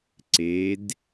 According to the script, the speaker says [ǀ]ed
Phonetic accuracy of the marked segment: correct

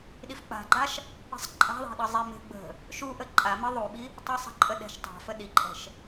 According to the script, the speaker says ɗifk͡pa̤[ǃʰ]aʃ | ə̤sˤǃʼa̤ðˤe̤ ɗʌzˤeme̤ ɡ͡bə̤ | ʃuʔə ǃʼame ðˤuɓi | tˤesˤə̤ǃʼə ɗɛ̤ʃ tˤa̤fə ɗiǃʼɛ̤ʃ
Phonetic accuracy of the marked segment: incorrect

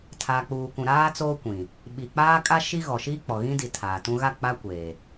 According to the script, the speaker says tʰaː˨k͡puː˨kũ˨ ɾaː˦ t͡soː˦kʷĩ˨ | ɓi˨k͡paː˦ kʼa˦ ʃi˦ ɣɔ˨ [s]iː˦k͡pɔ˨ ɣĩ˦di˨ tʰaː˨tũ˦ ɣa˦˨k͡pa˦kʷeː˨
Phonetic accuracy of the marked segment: incorrect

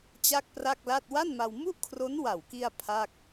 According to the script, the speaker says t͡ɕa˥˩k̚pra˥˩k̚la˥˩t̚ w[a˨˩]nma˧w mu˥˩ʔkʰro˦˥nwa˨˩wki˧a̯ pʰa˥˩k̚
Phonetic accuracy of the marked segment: incorrect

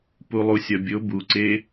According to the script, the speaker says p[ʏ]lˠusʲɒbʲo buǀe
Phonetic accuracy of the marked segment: incorrect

